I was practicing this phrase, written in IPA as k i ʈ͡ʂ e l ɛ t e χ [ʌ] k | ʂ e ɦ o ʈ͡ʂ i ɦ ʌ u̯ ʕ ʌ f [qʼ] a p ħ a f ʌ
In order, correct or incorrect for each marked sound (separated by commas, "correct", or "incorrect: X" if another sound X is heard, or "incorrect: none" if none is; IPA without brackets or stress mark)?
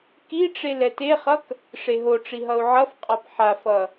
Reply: correct, correct